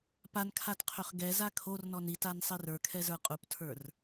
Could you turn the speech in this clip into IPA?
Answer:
p a n kʰ a t qʰ ø χ ɡ ɛ z a kʰ o r n ɔ n i t a n sˤ i r ə˞ kʰ ɛ z ə˞ qʼ u p tʰ ə˞ r

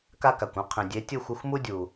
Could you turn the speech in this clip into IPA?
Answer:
k a˦ k a˨ kʷ ũ˦ qʰ ĩ˨ dʲ e˨˦ tʲ ɯ˦˨ xʷ ɯ˧ xʷ m u˦ dʲ u˨

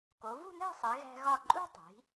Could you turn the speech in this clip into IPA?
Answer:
k o˩˧ v ṳ˥˧ n̪ æ̤˥˧ sˤ e˩˧ ɣ æ̤˧ ɣ ɒ˧˩ ǃʼ ṳ˥ tˤ i̤˩˧

